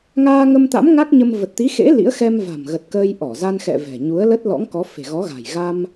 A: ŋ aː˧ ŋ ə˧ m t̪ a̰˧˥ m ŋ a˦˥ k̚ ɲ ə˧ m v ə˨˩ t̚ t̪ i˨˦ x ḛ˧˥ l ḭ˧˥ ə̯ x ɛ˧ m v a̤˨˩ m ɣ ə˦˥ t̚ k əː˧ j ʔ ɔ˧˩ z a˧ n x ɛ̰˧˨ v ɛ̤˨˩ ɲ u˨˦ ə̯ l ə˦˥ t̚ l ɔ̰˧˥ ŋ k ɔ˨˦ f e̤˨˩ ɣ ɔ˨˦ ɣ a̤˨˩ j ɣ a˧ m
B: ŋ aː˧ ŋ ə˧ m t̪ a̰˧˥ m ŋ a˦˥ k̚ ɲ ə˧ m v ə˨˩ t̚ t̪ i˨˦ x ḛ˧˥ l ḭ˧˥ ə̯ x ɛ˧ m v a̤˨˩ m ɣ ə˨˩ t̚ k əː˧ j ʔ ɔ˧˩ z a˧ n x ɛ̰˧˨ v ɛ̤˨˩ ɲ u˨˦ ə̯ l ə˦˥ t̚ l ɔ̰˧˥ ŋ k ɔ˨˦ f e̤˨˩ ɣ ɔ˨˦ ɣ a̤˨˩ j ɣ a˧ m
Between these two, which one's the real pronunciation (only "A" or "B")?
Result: B